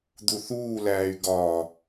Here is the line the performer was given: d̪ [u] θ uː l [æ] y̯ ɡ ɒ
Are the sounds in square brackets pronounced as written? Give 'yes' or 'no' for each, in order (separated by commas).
yes, no